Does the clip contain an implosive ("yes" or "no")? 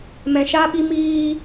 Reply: yes